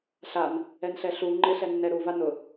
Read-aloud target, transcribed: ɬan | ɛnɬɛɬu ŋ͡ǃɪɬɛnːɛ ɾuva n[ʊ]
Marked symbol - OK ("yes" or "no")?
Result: yes